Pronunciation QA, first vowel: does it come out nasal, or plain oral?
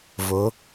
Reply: oral